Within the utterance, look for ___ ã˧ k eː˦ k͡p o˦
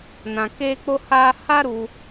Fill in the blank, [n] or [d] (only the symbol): n